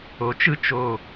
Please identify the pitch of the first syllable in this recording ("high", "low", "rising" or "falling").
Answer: rising